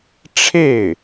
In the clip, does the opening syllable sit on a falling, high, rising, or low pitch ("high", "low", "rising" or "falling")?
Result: falling